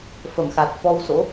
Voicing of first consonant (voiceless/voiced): voiceless